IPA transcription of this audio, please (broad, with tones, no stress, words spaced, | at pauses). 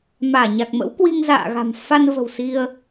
maː˧˩ɲa˨˩k̚mə̰˧˥w kwi˧ŋza̰ː˧˨ɣa̤˨˩m fa˧nvə̤˨˩w si˧ə̯